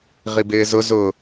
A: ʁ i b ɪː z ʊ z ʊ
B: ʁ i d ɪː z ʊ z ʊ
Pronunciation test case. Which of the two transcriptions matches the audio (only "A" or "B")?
A